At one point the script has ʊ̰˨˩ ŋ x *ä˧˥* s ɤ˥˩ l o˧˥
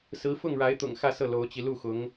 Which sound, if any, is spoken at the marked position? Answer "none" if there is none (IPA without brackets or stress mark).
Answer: ä˥˧